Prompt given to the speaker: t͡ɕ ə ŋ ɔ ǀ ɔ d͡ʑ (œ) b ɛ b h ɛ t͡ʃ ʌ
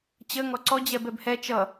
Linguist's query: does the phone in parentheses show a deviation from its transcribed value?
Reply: yes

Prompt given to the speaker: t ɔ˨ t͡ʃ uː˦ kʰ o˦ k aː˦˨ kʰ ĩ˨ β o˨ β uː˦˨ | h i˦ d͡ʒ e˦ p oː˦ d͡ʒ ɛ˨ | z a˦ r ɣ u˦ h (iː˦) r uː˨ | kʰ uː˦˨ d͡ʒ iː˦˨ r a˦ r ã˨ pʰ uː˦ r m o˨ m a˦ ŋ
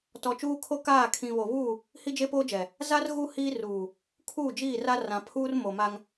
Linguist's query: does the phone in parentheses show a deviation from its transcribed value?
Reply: no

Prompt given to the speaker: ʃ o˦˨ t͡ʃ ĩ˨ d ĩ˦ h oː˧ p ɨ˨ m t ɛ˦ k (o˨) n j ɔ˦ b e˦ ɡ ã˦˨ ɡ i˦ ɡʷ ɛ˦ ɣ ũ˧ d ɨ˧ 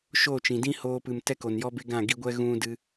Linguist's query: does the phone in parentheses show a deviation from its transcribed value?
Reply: no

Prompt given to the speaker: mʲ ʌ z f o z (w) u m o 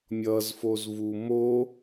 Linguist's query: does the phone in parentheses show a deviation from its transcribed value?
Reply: yes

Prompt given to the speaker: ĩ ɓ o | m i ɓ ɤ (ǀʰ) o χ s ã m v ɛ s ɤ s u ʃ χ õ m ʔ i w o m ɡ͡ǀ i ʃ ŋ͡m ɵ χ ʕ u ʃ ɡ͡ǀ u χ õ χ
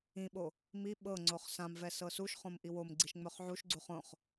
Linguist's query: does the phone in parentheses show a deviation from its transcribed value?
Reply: yes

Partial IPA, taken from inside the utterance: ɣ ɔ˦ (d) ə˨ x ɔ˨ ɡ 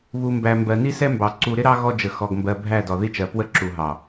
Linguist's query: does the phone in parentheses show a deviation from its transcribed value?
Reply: yes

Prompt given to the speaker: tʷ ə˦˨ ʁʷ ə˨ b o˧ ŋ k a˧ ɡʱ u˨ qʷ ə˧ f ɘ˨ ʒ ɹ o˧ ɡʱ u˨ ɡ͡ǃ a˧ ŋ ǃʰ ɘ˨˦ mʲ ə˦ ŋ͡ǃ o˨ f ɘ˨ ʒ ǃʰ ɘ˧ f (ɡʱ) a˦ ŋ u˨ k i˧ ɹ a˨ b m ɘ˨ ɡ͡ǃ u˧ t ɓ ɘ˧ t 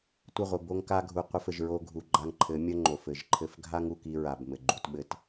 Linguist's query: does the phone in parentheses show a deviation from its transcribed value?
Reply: no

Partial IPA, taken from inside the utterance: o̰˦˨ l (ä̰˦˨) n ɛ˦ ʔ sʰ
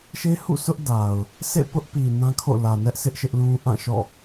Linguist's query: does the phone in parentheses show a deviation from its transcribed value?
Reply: yes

